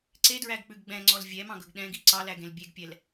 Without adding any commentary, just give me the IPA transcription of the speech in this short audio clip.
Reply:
ǀedɹæɡk͡pʉɡ ɡ͡bɛ̃ŋ͡ǀɔl vʲɛmɑ̃ɡɵɡ ɗɛ̃ɡi ǀɑlæɡẽl bʲeɡpʲɛl

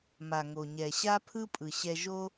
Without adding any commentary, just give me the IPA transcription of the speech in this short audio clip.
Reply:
ma˩ŋo˩ɲɛ˩ ɕa˥pʰɯ˥pʼɯ˩ɕɛ˧ ʒo˥

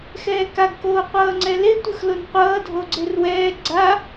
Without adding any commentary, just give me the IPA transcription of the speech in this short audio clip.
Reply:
xɛːkaɡkoː qʷʌːŋ͡ǀɛle tʷɯxlon qʷʌːdʱoɡ͡ǀer wɛː ɡ͡ǀa

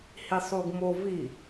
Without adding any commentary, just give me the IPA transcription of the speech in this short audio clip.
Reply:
hisˤuɡmovi

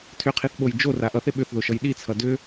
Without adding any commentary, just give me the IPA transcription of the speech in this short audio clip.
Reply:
tʰʏqʰiθɓoj d͡ʒora ʔʌθe ɓʏθðoʃʌj ɗit͡sʰʌ dʏ

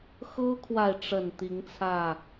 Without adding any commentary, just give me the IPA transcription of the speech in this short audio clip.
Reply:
xɤ˦kʰwa˨ɪ̯ʈ͡ʂə˨˩n t̪i˨˦ŋt͡sʰä˥˨

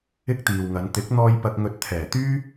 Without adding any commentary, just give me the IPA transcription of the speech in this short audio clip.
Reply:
ɪ˥k̚ t̪iː˨wŋɐ˨˧n t̪ɪ˨˥k̚n̪ɔː˧j pɐ˧k̚ŋɵ˧t̚ t̪ʰɛː˨˩t̪yː˥

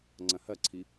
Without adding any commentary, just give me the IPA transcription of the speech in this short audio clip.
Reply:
ŋ͡ǀɐ̃hɐǀʰi

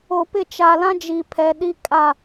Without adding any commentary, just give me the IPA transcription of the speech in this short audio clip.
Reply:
o˨pɪ˦˨ t͡ʃa˨lã˦d͡ʒi˨ pʰɛ˨˦ɗi˦kʼa˦˨

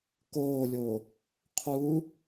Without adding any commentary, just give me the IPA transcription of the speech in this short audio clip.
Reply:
koːlʲoː | qʰuː

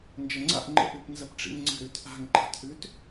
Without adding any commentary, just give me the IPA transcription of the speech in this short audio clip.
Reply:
nd͡ʒɐŋ͡ǀa̰ʔ ŋ͡ǃə̰ʔ ʉpnzɐpʈ͡ʂḭŋŋ͡ǀə̤ ɾʉtʔa̤ŋ ǃa̤tʔʉt

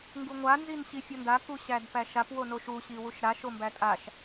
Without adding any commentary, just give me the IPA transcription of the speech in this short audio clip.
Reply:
ŋɡuŋʷa nzinɕifʲɔnda kuɕædpæʃap wonoʃu ɕiwuʃɾa ʃombætʼaʃ

